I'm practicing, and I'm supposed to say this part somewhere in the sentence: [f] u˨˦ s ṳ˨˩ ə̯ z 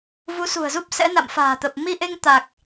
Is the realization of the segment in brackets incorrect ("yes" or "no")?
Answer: yes